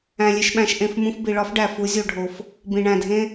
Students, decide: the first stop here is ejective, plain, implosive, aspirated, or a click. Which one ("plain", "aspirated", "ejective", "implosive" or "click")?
implosive